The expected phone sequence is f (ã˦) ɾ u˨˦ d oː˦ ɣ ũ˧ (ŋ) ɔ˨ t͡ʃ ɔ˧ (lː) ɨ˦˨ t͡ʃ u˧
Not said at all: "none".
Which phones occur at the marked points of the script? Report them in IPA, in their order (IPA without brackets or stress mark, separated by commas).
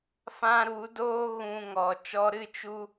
ã˦, ŋ, ɾ